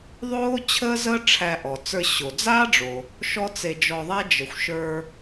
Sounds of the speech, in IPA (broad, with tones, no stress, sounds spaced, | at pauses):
ðˤ oː˥ t͡ɕʰ əː˥ z əː˥ ʈ͡ʂʰ æ˧ ʔ ɔ˩ t͡s ə˞˧ ɕ o˩ d͡z aː˥ ɖ͡ʐ o˩ | ʃ ɔ˥ t͡s e˧ d͡ʒ ɔ˧ ðˤ æ˥ d͡ʒ ə˩ xʷ ʃ ə˞˧